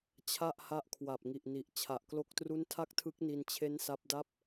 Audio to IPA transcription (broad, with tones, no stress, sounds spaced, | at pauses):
t͡ɕʰ a˥˩ ʔ h a˦˥ ʔ kʰ w a˨˩ p̚ ŋ i˨˩ ʔ n i˨˩ ʔ t͡ɕʰ a˨˩ ʔ k l o˥˩ k̚ t r u˥˩ n tʰ a˥˩ k̚ tʰ ɯ˦˥ k̚ n i˧ n t͡ɕʰ e˦˥ n s a˦˥ p̚ d a˥˩ p̚